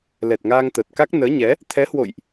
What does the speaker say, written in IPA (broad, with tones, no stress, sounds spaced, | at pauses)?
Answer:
l ɛ˨˩ t̚ ŋ aː˧ ŋ t̪ əː˨˩ t̚ k a˦˥ k̚ n əː˨˦ ɲ ɛ˨˦ | t̪ʰ ɛ˨˦ h w o̰˧˨ j ʔ